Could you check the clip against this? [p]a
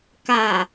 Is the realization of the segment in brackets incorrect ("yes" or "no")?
yes